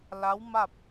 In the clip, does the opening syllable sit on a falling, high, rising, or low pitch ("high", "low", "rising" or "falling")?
rising